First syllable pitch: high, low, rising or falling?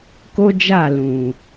high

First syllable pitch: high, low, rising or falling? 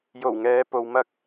low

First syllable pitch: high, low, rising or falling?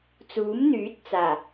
rising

